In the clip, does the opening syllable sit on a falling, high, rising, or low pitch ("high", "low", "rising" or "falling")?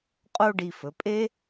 high